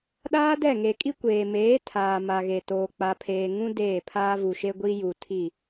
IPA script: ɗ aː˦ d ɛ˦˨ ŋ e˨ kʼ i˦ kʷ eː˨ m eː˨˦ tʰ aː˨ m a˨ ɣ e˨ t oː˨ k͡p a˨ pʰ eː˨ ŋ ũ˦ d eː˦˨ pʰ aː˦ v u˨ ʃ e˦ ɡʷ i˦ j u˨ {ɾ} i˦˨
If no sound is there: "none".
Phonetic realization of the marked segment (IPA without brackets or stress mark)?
tʰ